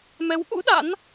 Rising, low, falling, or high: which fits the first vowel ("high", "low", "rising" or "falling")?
rising